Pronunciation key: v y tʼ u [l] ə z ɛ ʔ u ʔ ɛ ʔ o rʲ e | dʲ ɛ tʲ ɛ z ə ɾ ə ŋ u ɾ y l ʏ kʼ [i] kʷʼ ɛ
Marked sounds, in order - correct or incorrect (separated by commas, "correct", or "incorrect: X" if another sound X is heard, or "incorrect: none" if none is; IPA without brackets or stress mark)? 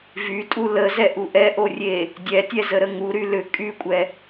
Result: correct, incorrect: y